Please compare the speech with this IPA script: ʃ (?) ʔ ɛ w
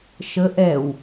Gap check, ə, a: ə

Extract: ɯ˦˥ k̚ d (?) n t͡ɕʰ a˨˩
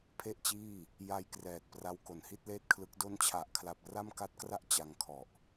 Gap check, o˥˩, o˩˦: o˥˩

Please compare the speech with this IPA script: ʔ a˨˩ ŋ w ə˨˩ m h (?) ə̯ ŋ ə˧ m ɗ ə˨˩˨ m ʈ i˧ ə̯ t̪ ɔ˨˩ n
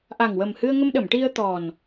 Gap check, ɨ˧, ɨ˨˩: ɨ˧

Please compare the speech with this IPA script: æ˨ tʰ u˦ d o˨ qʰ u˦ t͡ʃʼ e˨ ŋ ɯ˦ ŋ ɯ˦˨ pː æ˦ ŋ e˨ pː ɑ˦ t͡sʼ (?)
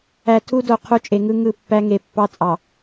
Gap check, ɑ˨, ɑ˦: ɑ˨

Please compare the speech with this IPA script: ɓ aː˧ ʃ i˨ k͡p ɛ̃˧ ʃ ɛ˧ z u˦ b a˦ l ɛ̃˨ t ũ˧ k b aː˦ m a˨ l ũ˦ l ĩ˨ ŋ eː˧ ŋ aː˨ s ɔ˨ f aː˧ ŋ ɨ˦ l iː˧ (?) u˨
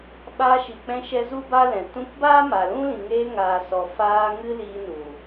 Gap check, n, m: n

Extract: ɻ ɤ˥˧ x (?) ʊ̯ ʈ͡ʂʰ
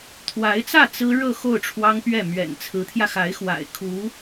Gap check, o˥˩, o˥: o˥˩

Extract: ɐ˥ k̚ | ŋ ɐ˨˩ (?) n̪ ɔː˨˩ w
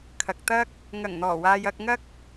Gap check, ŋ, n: ŋ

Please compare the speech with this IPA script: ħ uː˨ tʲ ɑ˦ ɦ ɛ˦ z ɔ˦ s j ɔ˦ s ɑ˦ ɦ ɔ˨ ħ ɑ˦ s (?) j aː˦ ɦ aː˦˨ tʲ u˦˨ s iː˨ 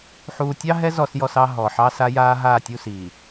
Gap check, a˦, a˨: a˦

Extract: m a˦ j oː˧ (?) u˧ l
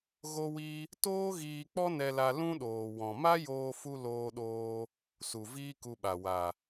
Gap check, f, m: f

